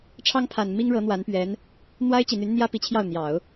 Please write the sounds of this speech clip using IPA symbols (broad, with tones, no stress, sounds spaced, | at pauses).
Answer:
ʈ͡ʂʰ ɑ˥ ŋ pʰ a˨˩ n m i˥ ŋ ɻ ɤ˧˥ n̪ w a˧˥ n p ɥ ɛ˧˥ n | n̪ w a˥ ɪ̯ t͡ɕ i˨˩ n̪ y˧˥ n n̪ j ä˥ p i˧˥ t͡ɕʰ j ɑ˥˩ ʊ̯ n̪ j ɑ˨˩˦ ʊ̯